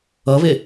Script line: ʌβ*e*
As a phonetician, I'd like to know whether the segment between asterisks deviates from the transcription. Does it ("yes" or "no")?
no